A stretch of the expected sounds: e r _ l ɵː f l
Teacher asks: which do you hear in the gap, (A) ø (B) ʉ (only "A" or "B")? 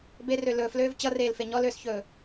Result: A